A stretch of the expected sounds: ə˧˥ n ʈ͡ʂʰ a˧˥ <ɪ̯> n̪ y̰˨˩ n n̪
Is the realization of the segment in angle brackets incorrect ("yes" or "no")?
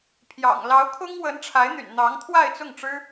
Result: no